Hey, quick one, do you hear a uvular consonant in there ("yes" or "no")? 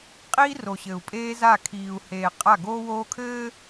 yes